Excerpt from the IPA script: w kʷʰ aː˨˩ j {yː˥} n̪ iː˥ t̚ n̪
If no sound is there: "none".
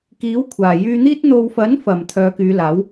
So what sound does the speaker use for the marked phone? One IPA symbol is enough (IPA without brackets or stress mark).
yː˧